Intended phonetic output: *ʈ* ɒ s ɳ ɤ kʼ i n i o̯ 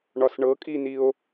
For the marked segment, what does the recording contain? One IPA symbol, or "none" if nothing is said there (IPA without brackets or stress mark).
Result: ɳ